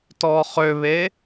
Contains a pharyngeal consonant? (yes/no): no